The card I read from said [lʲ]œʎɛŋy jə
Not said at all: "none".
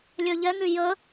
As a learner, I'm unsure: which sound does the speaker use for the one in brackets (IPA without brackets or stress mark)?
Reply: lʲ